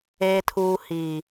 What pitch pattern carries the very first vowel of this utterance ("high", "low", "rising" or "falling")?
low